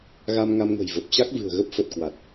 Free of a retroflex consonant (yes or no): yes